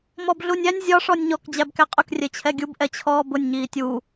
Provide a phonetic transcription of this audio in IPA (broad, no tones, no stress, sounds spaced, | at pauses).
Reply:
m ɔ b ɮ u nʲ æ nʲ zʲ ɒ ʂ ɔ nʲ ɲ ɔ k d͡ʑ æ b k æ qʼ ʊ k rʲ ɛ t͡ɕʰ ɛ ɡʲ u b ʔ ɛ t͡ɕʰ ɔː b ʊ nʲ ɲ iː tʲ uː